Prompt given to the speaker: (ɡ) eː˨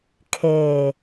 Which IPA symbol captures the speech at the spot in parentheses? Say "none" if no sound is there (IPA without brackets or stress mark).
kʰ